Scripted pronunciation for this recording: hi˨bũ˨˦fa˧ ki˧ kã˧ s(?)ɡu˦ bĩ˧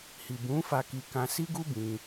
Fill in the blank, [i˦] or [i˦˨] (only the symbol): i˦